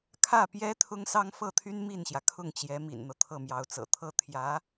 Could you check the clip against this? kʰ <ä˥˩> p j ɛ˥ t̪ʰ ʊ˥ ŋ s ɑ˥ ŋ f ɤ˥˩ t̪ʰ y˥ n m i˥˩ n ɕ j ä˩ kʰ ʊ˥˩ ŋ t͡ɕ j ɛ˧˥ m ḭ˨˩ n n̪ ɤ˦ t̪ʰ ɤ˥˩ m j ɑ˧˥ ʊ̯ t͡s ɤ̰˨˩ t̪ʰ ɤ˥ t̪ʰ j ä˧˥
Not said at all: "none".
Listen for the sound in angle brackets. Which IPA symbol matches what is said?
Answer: ä˥˩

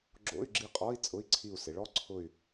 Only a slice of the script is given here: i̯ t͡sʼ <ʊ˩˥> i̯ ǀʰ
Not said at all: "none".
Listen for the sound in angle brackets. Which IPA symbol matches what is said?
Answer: ʊ˧˥˧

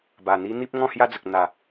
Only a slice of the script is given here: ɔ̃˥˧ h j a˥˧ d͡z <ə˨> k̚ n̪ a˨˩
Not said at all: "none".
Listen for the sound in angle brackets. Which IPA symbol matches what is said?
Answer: ə˨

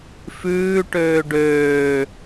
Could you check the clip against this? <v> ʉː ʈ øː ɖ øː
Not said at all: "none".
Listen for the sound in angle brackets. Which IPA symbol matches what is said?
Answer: f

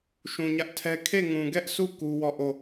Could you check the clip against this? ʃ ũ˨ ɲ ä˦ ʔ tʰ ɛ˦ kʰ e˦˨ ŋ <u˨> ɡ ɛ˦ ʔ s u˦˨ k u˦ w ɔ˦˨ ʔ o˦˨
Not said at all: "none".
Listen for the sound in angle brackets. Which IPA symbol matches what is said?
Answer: ũ˨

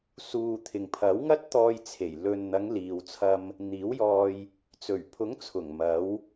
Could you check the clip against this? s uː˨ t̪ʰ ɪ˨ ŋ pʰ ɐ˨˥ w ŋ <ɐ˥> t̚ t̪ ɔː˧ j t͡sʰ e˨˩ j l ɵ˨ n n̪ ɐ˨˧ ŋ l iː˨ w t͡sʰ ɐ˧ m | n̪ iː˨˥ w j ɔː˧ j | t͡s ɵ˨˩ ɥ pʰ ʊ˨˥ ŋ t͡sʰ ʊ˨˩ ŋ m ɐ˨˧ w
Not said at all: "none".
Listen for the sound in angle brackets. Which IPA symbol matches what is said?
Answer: ɐ˥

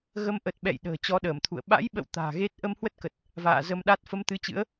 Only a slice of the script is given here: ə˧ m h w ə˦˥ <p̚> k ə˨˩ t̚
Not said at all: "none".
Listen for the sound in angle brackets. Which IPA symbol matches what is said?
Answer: t̚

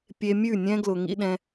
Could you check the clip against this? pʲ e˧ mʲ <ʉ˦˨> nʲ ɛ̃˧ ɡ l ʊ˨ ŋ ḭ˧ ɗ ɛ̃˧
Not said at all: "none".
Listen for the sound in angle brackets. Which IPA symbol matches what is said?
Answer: ʉ˦˨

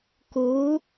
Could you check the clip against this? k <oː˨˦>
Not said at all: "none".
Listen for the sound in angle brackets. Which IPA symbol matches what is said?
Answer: oː˨˦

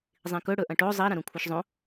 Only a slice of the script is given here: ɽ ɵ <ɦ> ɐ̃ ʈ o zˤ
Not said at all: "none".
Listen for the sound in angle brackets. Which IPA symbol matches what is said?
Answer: ʔ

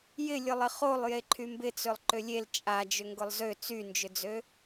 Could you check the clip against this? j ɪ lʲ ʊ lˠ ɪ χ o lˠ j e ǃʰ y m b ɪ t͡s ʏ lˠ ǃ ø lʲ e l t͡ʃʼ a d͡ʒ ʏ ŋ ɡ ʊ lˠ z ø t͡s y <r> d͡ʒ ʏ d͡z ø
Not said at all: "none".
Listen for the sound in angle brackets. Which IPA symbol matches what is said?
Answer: n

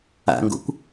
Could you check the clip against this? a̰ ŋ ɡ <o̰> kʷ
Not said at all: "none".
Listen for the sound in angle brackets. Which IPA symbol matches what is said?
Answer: o̰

